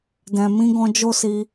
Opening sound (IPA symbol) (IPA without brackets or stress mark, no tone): d